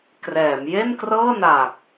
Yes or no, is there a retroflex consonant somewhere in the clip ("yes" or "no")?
no